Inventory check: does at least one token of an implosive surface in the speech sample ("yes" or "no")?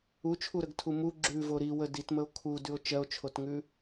no